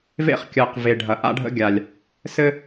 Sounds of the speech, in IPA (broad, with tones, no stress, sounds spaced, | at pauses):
v ḛ˦ χ kʲ ɜ˨ q v e˨ ɖʱ ɐ˨ ʔ a̰˦ ɖʱ ə̰˦ ɡʲ a˨ lʲ | s ɘ˦